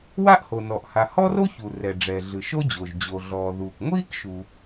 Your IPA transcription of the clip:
w a˥ ʔ h o˩ n ɔ˩ ʔ h a˩ h ɔ˥ r o˥ ç u˩ r ɛ˩ ɖ͡ʐ ɛ˩ ɮ ɯ˩ ʃ o˥ d͡ʑ o˩ ʒ d͡ʑ o˩ ɮ ɔː˩ ð uː˩ k ŋʷ iː˥ k ʃ u˩

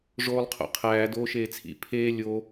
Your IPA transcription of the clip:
ʐ oː lˠ qʰ o̰ qʰ æː d oː ʃ eː t͡sʰ ḭ pʰ eː lʲ o

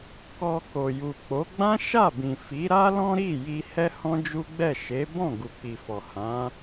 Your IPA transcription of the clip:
k ɔ˧ k o˨ j u˨ k͡p o˨˦ ɡ͡b ã˦ ʃ a˦˨ b ĩ˨ f i˨˦ ɾ a˦ l ɔ̃˦ ɾ i˦˨ j i˧ h ɛ˦ h ɔ̃˦ d͡ʒ u˦ ɡ͡b ɛ˦˨ ʃ e˨˦ b ɔ̃˦˨ ɡ u˨ k͡p i˨ f ɔ˨ h ã˨˦

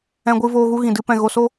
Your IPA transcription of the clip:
ɛ̃˧ ɡʷ ɨ˧ v oː˧ ɣ u˦ ɣ ĩ˨ d ɨ˦ p ɛ̃˧ ɣ o˧ s o˦

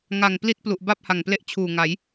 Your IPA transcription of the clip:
ŋ a˨˩ ŋ p l i˥˩ t̚ p l u˨˩ ʔ b a˥˩ p̚ h a˨˩ ŋ p l e˥˩ ʔ t͡ɕʰ uː˨˩ ŋ a˩˦ j

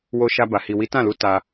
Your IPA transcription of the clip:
w o˧ ʃ a˧ b a˨ h i˨ w i˨˦ t ã˦˨ l u˧ t a˧

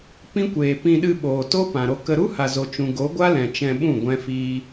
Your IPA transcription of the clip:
p ĩ˦ kʷ eː˨ p ĩ˧ ɗ ɨ˧ ɓ oː˨ t o˦ p ã˨ ɾ o˧ k ə˧ ɾ u˦ h a˨ z o˨ t͡ʃ ũ˨ ɡ o˨˦ ɡʷ a˦ l ɛ̃˨ t͡ʃ ɛ̃˧ ɓ ũ˦˨ ɡʷ ɛ̃˧ f iː˧

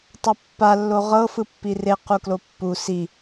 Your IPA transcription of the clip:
tˤ a pː a lː o ʁ ɤ f ɯ pː i r e q u k l o pː u s i

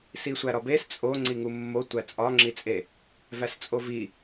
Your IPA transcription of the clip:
s i sʷ æ ɾ ɒ b e s t͡sʼ o ŋ͡ǀ i ŋ u mː o tʷ æ t͡sʼ ɒ ŋ͡ǁ i t͡sʼ e | v æ s t͡sʼ o v i

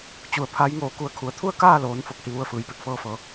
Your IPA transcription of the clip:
t͡ɕ u˧˩ ə̯ pʰ a˧˥ j ŋ oː˧˩ k u˧˩ ə̯ kʰ u˩ ə̯ t̪ʰ u˥˨ ə̯ k aː˥˨ l oː˩˧ n f o˧˥ k̚ h i˧ ʋ u˧˥ ə̯ f ɯː˩˧ j p e˧˩ k̚ f ɤː˥˨ f ɤː˩˧

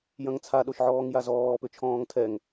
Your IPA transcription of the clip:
j ɐ̃ ŋ t͡sʰ a ɗ o ʃ ʕ ɔː ŋ j a z ɔː p ʏ t͡ʃʰ ɔ̃ː ŋ tʰ ɛ ŋ

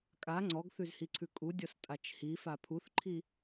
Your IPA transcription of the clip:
kʼ a ŋ͡ǀ ɔ ɡ θ ʉ z h i ǀʰ ʉ kʼ u dʲ ɔ s tʼ a t͡ʃ h i f a pʰ u θ ǃʰ i

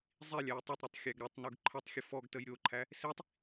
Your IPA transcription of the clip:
zˤ i lʲ æ j tˤ i tˤ ɾ i tˤ xʲ æ ɡ ɾ o tˤ n u ɡ ǃʰ ə tˤ xʲ ə f ɔ ɡ t ə j ɾʲ o ǃʰ æ | s i tˤ

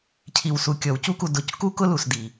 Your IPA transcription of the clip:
cʰ i˨ w s u˨ kʲ ɔ˨ w c u˧ k u˨ d ʊ˨ c k u˦ k ʊ˦ l u˨ s d i˨

